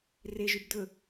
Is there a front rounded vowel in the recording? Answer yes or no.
yes